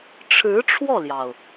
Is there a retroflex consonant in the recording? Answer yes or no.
yes